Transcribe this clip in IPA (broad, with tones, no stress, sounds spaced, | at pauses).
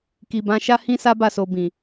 k i˨ b ã˨˦ ʃ a˦ h ĩ˦ s a˦ b a˦˨ s o˨ b ĩ˨